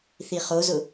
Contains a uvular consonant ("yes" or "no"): yes